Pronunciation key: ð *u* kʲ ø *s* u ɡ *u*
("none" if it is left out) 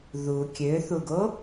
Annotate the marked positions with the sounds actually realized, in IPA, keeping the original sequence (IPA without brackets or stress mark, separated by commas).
u, θ, o